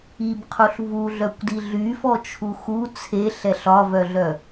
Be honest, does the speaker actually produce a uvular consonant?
yes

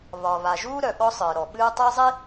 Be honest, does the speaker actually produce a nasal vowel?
no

